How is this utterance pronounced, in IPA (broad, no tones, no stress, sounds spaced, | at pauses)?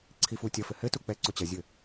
ǀʰ i f u tʲ ɐ f ɘ h ɘ t u k͡p ɛ ǀ o t͡ɕ ɐ zʲ ɘ